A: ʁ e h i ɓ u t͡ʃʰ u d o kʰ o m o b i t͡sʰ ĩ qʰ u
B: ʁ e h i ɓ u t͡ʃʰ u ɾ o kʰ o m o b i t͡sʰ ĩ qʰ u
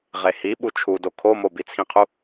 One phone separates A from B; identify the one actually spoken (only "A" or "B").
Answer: A